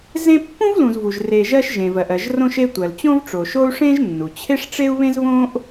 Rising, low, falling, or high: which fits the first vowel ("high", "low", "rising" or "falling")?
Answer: high